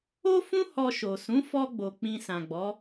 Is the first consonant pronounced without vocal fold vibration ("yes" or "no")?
yes